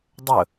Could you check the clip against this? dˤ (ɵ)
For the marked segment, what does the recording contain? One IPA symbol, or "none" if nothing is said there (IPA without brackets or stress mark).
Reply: ɵ